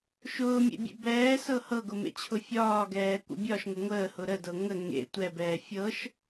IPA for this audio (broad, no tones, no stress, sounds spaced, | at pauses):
ʃ ʊː mʲ ḛ bʲ ḛ b ɛː s ɤ h ɤ ɡ ʊ m ḛ t͡ɕʰ ʊ fʲ ɒː ɡ ɛː kʷ ə̰ bʲ ɒ ʃ ŋ ʊ ŋʷ əː h ʊ ɾ ə d ɤ ŋ ə ŋ ḛ tʷ ɛ b ɛː fʲ ɤ ʃ